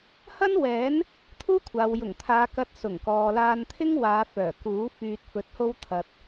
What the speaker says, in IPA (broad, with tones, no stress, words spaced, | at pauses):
hɐ˥nwɛː˨˥n | t̪ʰuː˥kʷʰaː˨w jʊ˨˩ŋt̪ʰaː˨˧kɐ˧t̚ sʊ˨˩ŋkɔː˨laː˧nt̪ʰɪ˥ŋ waː˨˧fœː˨˩kuː˨˥ fyː˧t̚fɵ˧t̚ho˥wt̪ʰɐ˧t̚